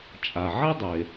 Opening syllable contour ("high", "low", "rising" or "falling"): low